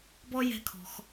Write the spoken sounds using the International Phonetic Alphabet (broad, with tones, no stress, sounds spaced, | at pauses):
b ɔ˥ j ɛ̤˥ kʰ ɔ̤˧ x